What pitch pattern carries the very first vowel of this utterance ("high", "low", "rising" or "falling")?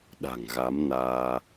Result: low